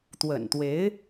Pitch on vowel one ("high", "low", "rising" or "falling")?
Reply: low